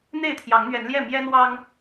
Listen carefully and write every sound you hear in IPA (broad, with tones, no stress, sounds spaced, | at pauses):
n̪ e˥˨ ɪ̯ t̪ʰ j ɑ˨˦ ŋ n̪ ɥ ɛ˨˦ n l j ɛ˥˨ m j ɛ˦ n w ɑ˦ ŋ